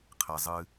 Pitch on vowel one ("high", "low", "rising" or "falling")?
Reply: low